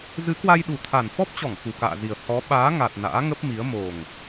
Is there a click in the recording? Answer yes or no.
no